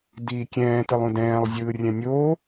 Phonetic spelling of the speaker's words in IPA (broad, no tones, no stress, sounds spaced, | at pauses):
d iː kʲ ɛ̃ː t ɯ lˠ ũ d ɛ̃ː lˠ zʲ ɯː rʲ ɛ̃ nʲ oː